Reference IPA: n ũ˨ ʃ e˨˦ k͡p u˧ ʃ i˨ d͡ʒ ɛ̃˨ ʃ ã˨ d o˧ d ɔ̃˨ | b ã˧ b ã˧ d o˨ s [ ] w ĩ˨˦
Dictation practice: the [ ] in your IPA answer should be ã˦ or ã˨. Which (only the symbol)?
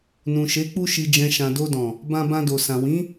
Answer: ã˨